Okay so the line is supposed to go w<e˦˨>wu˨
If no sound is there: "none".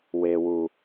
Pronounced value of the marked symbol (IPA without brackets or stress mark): e˨